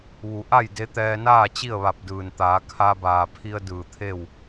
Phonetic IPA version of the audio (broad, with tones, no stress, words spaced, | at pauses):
ʋu˩˧ ʔa˥˨jde˧˥t̪ɛː˧naː˥˨ t͡ɕi˥˨ə̯ʋa˧˩p̚dɯː˩nt̪aː˩˧ kʰa˧baː˩pʰi˧ə̯ dɯː˧˩t̪ʰe˥˨w